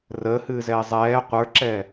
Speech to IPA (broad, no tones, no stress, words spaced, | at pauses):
rəːhɨːzɛː zˤɛː qʷə˞ǁɛ